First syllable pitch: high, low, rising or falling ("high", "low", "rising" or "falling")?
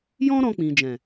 high